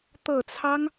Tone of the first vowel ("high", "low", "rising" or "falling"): low